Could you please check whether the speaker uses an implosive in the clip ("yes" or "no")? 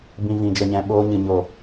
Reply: yes